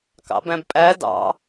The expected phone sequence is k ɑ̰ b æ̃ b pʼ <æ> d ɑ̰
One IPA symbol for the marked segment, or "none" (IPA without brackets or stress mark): æ